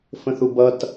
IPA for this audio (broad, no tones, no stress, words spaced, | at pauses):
fə̃θubʌt